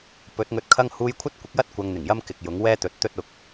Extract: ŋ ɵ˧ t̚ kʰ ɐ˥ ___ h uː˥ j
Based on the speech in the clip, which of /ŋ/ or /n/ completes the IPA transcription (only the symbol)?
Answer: ŋ